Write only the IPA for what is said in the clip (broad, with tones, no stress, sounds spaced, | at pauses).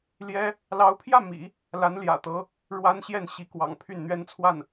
l j ɛ˥ | l ɑ˧˥ ʊ̯ pʰ j ä˥˩ m ḭ˨˩˦ | l a˧˥ n l j ä̰˨˩ t̪ ɤ˧˥ | ɻ w a˥ n ɕ j ɛ˥˩ n ɕ i˧˥ k w ɑ̰˨˩ ŋ pʰ y˥˩ n n̪ ɥ ɛ˥ n t͡sʰ w a˥˩ n